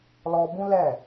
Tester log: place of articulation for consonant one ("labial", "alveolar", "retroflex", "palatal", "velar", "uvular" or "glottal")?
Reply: alveolar